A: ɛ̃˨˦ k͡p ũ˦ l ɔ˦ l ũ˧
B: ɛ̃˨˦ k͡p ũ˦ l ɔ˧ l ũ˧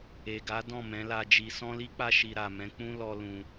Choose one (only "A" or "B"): A